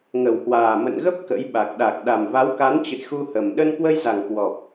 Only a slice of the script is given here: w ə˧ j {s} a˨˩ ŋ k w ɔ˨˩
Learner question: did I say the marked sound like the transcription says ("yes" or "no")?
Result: no